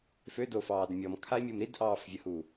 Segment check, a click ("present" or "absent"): absent